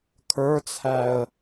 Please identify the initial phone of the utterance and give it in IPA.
kʰ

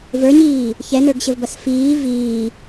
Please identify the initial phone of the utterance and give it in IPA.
v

